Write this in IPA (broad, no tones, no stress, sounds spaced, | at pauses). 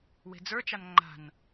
w e̤ d͡z ə˞ t͡ʃ a n ŋ͡ǃ a̤ n